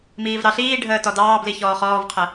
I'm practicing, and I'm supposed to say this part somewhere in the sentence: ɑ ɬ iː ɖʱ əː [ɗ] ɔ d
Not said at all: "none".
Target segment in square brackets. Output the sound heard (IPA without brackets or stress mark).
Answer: t